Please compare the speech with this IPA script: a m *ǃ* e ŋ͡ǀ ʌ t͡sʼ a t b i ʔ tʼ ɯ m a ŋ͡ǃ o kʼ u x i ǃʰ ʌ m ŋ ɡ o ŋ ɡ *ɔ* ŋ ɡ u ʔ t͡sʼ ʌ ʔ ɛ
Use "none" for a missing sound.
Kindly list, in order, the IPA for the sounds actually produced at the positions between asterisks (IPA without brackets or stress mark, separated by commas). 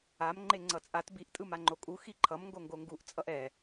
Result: ŋ͡ǃ, o